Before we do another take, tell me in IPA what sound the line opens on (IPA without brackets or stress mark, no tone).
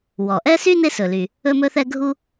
w